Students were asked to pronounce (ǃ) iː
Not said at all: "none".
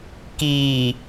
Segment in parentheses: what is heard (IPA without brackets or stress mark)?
k